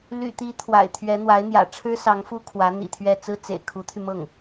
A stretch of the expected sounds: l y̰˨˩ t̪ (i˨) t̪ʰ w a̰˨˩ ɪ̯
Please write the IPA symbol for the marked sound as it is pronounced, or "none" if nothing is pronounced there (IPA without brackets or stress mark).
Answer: i˧˥